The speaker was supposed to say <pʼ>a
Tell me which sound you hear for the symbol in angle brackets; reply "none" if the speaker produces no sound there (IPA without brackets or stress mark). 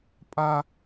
pʼ